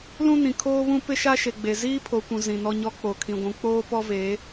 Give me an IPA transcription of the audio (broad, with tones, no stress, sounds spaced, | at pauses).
l ũ˦ n ĩ˨ kʰ oː˦ β ũ˦ p ɪ˦ ʃ a˦ ʃ e˨ ɡ͡b e˨ z iː˦ pʰ o˨ kʷ ũ˨ z ĩ˨ n ɔ˦ ɲ ɔ˦ k͡p o˨ kʰ ĩ˨ ɡʷ ũ˨ k͡p oː˦ p ɔ˦ v eː˨˦